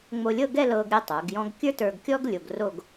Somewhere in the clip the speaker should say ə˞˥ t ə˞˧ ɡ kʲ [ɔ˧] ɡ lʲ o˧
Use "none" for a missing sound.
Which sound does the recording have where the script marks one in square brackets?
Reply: ɔ˥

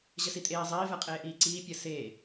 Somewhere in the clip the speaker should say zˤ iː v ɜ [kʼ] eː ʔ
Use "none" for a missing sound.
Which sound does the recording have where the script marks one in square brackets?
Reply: qʼ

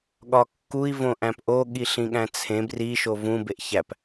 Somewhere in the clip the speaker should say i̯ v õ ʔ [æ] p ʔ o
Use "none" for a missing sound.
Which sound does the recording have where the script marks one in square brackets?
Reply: æ̃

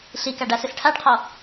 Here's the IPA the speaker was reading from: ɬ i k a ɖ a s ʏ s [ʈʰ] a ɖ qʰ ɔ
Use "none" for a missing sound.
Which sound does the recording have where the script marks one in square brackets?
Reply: ʈʰ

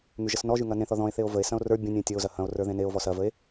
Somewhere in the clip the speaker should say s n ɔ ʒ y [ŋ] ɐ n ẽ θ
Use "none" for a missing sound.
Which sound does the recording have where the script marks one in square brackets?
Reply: ŋ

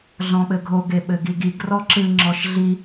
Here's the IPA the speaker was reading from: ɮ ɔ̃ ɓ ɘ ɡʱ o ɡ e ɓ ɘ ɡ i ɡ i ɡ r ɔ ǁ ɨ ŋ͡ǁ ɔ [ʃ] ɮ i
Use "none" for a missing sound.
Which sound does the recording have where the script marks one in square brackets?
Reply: ʃ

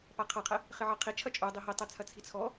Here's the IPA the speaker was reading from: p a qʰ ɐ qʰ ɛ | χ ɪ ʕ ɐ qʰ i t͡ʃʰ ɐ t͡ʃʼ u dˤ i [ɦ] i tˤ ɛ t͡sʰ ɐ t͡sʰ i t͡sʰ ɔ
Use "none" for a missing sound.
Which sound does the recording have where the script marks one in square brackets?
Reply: ɦ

